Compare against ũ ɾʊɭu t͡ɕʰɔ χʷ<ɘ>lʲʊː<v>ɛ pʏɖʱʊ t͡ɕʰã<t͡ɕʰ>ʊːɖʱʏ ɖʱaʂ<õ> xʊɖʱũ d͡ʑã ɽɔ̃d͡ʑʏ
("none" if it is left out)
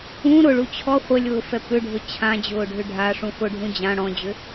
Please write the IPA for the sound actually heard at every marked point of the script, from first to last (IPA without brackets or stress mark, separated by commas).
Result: ɘ, f, d͡ʑ, ũ